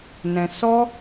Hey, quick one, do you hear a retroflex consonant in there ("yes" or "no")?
no